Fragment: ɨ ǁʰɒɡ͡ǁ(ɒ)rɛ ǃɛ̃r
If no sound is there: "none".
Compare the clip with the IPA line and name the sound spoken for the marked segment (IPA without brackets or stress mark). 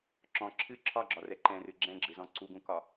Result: ɒ